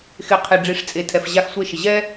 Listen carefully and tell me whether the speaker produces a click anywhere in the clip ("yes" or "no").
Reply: no